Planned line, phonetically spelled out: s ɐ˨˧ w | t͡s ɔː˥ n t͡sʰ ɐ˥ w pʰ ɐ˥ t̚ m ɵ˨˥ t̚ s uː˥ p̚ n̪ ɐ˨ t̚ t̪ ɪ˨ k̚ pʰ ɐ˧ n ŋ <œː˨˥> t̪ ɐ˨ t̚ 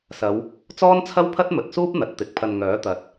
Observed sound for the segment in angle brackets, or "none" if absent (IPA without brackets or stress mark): œː˨˥